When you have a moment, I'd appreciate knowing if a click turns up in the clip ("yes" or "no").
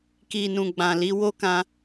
no